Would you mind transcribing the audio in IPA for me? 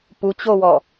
p u t͡ɕ o w ɔ

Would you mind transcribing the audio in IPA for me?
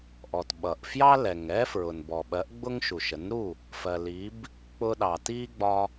ʔ ɔ˩ t ɓ ʌ˩ ʔ f j ɑ˥ l ɛ˩ ŋ ɛ˥ f ɹ ʊ˩ n b ɔ˩ ɓ ɜ˩˥ ʔ ɡ͡b ʊ˥ ŋ ʃ u˩ ʃ ə˩˥ n ɾ u˥˩ | f ɜ˩ l i˩˥ b | k͡p ʊ˧ ɗ ɑː˩ t iː˥ ɡ͡b ɒ˧

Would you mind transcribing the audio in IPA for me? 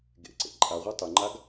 ɡ ḛ ǀ ḛ ǃʼ a ʁʷ ɑ tˤ ʏ ŋ͡ǃ a ɡ

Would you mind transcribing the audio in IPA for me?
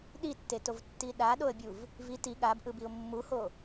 ɗ i tː e t o v tː i ɗ a ɗ o ə̯ bʲ u v | v i t i ɠ a b ʔ ɯ b i ʊ̯ mː u h o

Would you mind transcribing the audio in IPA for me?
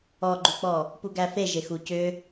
ɔ ɡ͡ǃ u k͡p ɔ | p u ɡ æ f e ʒ e x u c ʏ

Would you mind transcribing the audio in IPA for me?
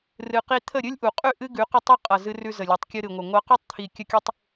r ɨ˧ q i˦ t̪ʰ ə˦˨ ɾʲ ɨ˦ lʲ ʔ u˨ qʼ ʉ˦˨ ʔ ɨ˦ ɡ ʉ˨˦ q ə˦ tˤ i˦ qʼ ʌ˨ z ɨ˧ r ʉ˧ z ə˨ lʲ u˨ tˤ kʲ ɨ˧ ɾ ɨ˨ ŋʷ ə˨ ŋʷ ʌ˧ q ʉ˦ tˤ t̪ʰ i˨ kʲ ə˧ kʲ ʉ˧ tˤ

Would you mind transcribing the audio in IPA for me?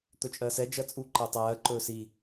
t̪ ɵ t͡ʃʼ ɜ s ɛ d͡ʒ ɜ t͡sʼ u ǃ ɜ tˤ ɜː ǃ ɵː s i

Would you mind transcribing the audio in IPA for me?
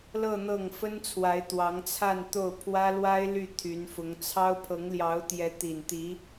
l ɤ˥˧ n̪ ɤ˥˩ ŋ f ə˥ n t͡sʰ w a˧˥ ɪ̯ t̪ w ɑ˧˥ ŋ t͡sʰ a˥˧ n t̪ o˥˩ ʊ̯ pʰ w ä˥ l w a˥ ɪ̯ l y˥˩ t̪ʰ y˧˥ n f ʊ˧˥ ŋ t͡sʰ ɑ˥ ʊ̯ pʰ ɤ˧˥ ŋ l j ɑ˧˥ ʊ̯ t̪ j ɛ˧˥ t̪ i˨˩ n t̪ i˧˥

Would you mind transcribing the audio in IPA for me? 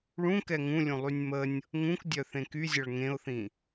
ɭ ũ k ɛ ŋ ũ lʲ ũ lˠ y nʲ m ə nʲ | ŋ ũ k dʲ œ θ ẽ k y zʲ ʌ ɭ ŋ ẽ ʊ̯ θ ĩ

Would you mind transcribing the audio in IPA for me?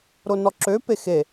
ɾ o n ɔ ǁ ø p e x e

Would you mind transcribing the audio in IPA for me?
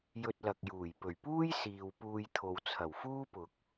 j ɵ˧ t̚ l ɐ˨ k̚ j uː˨˩ j p ɵ˨˩ ɥ p uː˥ j s iː˨ w p uː˧ j t̪ʰ o˨ w t͡sʰ ɐ˨˩ w f uː˥ p ʊ˨ k̚

